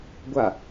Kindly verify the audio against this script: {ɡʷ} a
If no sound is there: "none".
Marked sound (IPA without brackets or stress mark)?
ɡʷ